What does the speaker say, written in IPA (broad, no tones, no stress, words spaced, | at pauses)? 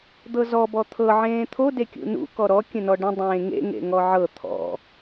d̪ɤzɔ bɔt̪ʰɤ ʕẽːt̪ʰo dekʲṵnṵ kɔɾɔ kʲə̃nɔɖə̃ dˤẽːŋḛ ŋḛŋɔʕɤ t̪ʰɔ̰